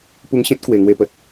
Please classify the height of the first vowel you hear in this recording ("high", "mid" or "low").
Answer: high